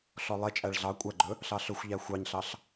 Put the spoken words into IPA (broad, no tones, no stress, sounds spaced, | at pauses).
ɬ ɔ lˠ e t͡ʃʼ æ ɭ ɮ ɑ kʷʼ æ ɡ͡ǃ ɵ | ɬ ɑ ɬ ɵ xʷ ʎ æ xʷ ɑ ɲ ɬ ɑ ɬ